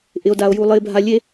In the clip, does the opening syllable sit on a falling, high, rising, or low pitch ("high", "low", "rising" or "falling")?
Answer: low